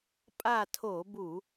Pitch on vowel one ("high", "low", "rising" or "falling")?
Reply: falling